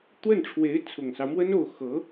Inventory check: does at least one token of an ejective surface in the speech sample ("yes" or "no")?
no